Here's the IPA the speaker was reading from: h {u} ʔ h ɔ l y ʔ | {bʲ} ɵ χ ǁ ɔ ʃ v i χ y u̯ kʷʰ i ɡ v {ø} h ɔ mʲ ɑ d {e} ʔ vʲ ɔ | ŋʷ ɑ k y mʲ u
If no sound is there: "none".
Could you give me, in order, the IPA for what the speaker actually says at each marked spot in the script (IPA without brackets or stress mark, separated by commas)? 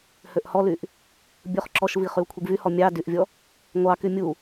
ø, bʲ, y, y